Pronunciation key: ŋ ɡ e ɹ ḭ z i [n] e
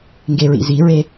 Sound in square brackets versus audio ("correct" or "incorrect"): incorrect